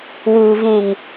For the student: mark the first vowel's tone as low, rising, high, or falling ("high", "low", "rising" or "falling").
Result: low